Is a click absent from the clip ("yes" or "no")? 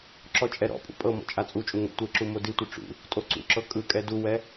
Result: no